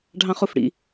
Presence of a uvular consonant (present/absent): present